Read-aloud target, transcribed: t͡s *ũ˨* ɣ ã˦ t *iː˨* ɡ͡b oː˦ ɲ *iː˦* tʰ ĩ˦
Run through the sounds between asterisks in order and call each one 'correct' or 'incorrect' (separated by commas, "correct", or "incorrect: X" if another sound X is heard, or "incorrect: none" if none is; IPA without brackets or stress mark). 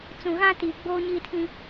correct, correct, correct